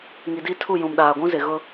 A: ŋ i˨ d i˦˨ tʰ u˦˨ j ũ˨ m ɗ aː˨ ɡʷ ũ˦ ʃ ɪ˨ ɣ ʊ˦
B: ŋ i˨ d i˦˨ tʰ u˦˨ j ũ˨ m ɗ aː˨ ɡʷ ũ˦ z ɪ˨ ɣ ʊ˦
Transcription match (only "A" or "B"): B